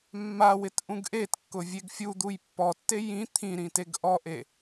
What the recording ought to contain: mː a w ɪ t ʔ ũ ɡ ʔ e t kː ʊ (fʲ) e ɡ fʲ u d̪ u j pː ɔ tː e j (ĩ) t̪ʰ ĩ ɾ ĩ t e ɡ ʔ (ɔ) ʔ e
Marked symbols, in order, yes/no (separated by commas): no, yes, yes